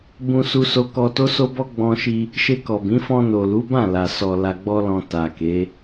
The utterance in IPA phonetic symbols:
b ũ˧ s u˧ s o˧ k ɔ˧ t o˦ s o˦ b ɔ˦ ɡ͡b ɔ̃˧ ʃ i˧ | ʃ e˧ k ɔ˨ b ĩ˨˦ f ɔ̃˧ n o˨ l u˨˦ b ã˦˨ l a˨ s ɔ˨ l a˨ ɡ͡b ɔ˧ l ɔ̃˨ t a˨ k e˨˦

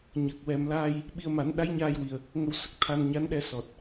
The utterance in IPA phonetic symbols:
ɲ ə˨˩ k̚ w ɛ˨˩ m l a˧ j | ɓ i˧ ə̯ m a˨˩˦ n ɗ a˧˥ j ɲ aː˧ j w i˨˩ ə̯ | ŋ ə˧ w s ə˦˥ k̚ t̪ʰ a˧ n ɲ a˧˥ n ɗ ɛ˧ s ɔ˨˩ t̚

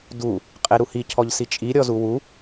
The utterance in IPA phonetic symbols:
d u | qʼ ɛ ɾ u h i cʰ ɔ ʎ s i t͡ʃʼ i ɾʲ ɔ z u w u

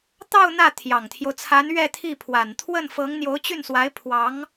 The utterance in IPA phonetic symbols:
t̪ ɑ˥˧ ʊ̯ n̪ ä˥˩ t̪ʰ j ɑ˨˩ ŋ t̪ʰ j o˦ ʊ̯ t͡sʰ a˧˥ n ɥ ɛ˥˧ t̪ʰ i˥˩ pʰ w a˨˩ n t̪ʰ w ə˥˩ n f ɤ˧˥ ŋ n̪ j o˧˥ ʊ̯ t͡ɕ y˥˩ n s w a˧˥ ɪ̯ pʰ w ɑ˧˥ ŋ

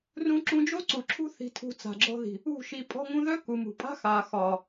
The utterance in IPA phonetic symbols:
r ũ˧ ǁ ũ˧ d͡ʒ o˦ ǀ u˨ ǁʰ ṳ˦ θ i̤˧ tʰ ṳ˧ t͡s a̤˨ ɡ͡ǁ ɔ̤˧ ð i̤˨ | ṳ˦˨ ʃ i˧ pʼ ɔ̤˧ ŋ ũ˧ ð œ˦ k u˨ m ṳ˨ pʼ a̤˦ x aː˨ x ɒː˨

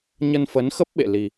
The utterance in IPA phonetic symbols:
ɲ ə˧ n f ə˨˦ n x ə˦˥ p̚ ɓ ḛ˧˨ l i˧

